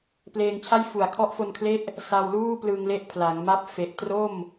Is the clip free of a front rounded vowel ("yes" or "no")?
yes